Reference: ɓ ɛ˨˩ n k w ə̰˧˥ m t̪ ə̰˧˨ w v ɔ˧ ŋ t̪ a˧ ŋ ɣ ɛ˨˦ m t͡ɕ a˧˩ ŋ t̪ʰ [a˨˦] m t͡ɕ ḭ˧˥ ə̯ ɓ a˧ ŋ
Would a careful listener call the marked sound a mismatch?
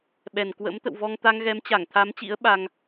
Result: no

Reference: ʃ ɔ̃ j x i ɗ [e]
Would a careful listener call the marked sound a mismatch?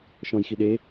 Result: no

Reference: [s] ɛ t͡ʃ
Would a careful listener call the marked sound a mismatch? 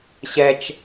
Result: yes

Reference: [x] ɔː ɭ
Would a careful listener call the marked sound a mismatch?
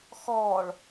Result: no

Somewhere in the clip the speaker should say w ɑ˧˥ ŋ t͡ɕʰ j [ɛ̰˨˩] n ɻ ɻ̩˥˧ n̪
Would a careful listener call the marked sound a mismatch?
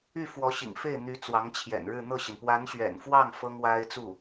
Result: no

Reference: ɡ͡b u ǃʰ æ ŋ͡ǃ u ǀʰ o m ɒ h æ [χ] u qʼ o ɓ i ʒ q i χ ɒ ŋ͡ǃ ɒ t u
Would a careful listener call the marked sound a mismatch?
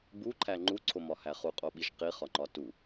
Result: no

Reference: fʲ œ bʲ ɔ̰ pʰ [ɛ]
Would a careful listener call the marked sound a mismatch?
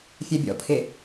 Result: yes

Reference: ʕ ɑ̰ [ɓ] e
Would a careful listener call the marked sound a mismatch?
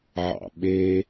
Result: no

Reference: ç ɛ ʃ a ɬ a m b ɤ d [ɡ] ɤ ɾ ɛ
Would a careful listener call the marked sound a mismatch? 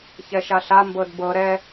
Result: yes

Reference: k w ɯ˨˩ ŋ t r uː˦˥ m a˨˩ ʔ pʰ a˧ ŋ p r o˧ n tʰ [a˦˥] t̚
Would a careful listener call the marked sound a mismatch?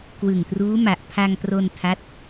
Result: no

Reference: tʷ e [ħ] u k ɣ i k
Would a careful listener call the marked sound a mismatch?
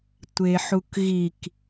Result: no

